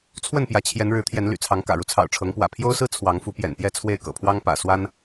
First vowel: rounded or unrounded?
unrounded